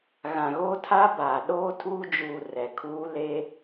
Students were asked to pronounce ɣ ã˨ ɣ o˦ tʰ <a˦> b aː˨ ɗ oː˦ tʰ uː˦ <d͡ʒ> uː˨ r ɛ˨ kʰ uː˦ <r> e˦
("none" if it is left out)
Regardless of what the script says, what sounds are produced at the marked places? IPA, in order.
a˦, d͡ʒ, l

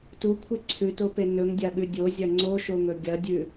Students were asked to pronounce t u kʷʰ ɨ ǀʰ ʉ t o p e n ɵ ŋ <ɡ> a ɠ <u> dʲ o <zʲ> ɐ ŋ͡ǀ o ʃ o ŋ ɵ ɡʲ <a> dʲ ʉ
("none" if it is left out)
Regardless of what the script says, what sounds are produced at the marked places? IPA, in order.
dʲ, ʉ, zʲ, ɐ

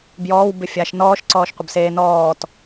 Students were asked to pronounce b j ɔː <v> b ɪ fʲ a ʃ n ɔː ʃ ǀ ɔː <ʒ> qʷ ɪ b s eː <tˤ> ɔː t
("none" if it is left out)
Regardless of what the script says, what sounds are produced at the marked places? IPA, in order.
w, ʃ, n

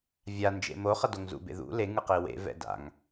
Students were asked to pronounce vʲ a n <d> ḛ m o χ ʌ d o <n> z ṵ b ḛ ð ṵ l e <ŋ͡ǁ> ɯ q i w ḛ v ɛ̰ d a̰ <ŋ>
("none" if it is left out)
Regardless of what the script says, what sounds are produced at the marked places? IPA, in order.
d͡ʒ, ŋ, ŋ, ŋ

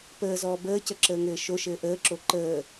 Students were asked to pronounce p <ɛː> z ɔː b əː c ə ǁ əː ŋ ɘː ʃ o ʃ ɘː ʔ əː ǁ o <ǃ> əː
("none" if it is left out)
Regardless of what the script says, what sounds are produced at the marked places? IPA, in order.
əː, ǃ

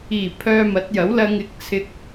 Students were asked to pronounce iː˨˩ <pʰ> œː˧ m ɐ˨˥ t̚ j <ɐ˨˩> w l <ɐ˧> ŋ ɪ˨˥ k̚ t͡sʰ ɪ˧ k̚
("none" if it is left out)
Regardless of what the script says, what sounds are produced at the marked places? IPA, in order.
pʰ, ɐ˨˥, ɐ˧

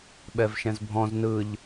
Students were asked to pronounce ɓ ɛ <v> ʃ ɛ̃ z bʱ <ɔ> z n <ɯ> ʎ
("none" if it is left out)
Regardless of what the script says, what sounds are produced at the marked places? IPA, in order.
v, ɔ̃, ɯ

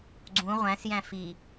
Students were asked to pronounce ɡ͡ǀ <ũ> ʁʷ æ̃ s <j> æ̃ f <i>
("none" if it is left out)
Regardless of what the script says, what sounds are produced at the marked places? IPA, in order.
ũ, j, i

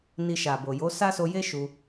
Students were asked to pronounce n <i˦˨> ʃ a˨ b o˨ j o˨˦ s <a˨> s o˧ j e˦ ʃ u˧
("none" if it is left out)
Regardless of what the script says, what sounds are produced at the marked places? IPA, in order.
i˧, a˦

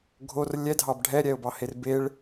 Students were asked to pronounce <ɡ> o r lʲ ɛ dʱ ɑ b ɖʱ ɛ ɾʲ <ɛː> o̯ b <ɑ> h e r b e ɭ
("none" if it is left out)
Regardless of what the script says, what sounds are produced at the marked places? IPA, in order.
ɡʱ, ɛ, ɑ

